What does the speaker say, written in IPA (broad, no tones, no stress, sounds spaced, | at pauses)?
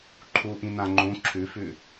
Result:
ǃʰ u ʔ ĩ n ã ŋ͡ǃ ũ ǁʰ ʉ f ʉ